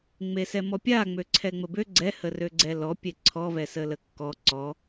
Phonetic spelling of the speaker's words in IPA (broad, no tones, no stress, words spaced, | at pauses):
ŋ͡mesɛmɔpʲa ŋ͡møǀʰɛŋ͡məbø ɡ͡ǀɛ hərøɡ͡ǀɛlɔ pʲeǀʰɔ vɛsələkːɔ ǀɔ